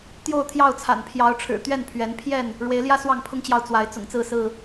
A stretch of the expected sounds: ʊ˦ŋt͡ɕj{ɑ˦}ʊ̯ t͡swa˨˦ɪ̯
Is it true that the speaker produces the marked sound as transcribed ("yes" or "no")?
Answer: no